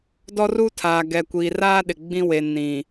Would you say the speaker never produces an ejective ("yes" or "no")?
yes